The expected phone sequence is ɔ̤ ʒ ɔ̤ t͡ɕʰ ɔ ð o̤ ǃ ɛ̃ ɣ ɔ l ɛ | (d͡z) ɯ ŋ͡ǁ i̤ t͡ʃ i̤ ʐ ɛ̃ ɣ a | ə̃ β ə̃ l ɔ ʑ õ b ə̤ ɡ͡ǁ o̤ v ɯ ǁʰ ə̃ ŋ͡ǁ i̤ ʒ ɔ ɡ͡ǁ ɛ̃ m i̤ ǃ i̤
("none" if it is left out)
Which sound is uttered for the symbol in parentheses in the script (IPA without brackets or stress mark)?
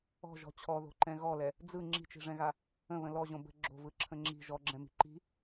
d͡z